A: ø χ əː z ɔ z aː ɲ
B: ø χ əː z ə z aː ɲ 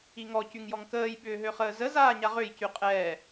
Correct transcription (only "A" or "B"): B